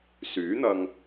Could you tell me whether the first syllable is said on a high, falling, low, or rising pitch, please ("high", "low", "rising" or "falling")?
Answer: rising